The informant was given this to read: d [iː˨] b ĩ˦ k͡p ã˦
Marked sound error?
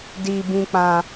yes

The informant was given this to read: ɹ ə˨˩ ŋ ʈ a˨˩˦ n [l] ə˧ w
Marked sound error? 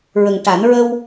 yes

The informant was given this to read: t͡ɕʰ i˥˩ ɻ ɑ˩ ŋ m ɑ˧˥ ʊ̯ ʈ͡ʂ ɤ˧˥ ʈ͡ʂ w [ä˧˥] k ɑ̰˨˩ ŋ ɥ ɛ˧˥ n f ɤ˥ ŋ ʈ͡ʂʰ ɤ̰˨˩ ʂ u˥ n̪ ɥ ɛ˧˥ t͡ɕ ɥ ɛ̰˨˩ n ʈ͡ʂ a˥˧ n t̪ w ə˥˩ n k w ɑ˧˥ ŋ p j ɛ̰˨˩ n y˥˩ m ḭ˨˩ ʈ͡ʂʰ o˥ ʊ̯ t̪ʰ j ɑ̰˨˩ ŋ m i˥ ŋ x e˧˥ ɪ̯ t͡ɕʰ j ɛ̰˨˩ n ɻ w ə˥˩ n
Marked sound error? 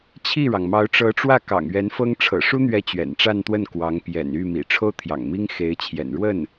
yes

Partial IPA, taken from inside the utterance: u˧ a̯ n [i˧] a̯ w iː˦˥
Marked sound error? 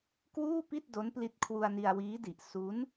no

